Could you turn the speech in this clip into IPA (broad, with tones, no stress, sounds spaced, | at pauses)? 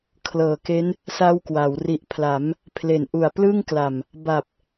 kʰ l ɤː˨˩ k e˦˥ n | s a˦˥ w k w a˩˦ w r i˨˩ ʔ pʰ l a˩˦ m | pʰ l e˨˩ n ʔ u˨˩ a̯ p l ɯ˥˩ ŋ k l a˨˩ m | b a˨˩ p̚